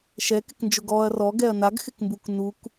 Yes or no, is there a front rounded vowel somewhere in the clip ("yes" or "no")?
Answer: no